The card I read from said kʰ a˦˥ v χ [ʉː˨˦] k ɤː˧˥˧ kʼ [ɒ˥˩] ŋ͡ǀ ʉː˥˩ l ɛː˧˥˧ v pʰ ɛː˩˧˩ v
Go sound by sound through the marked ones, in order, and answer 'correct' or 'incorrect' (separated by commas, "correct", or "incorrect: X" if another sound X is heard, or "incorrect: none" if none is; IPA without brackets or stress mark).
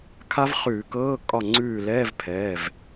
incorrect: ʉː˧˩˧, correct